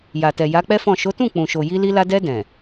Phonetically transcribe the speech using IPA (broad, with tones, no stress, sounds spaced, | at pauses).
j a˨ t ɛ˨ j a˨˦ k͡p ɛ˦ f ɔ̃˦˨ ʃ o˨˦ t ũ˦˨ k͡p ũ˨ ʃ o˨ j i˧ l i˧ l a˧ d ɛ˧ d ɛ̃˨